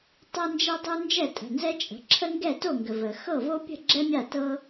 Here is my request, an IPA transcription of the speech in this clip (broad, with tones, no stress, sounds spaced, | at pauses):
tˤ ɛ˦ n d͡ʒ ɛ˦ dˤ u˦ n d͡ʒ ɛ˥˩ tʼ ə̤˩˧˩ n z ɛ˦ t͡ʃʼ ə̤˩˧˩ ǁʰ ə˦ ŋ ɡ ɛ˥˩ t o˥˩ ŋ ɡ ə˩ v ə˩ x ɤ˥˩ v o˦ pʲ ə̤˥˩ ɡ͡ǁ ɛ˦ mʲ a˥˩ t ɤ˦